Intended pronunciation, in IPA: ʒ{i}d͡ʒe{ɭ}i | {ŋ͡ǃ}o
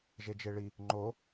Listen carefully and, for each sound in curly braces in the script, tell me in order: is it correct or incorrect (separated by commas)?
incorrect, correct, correct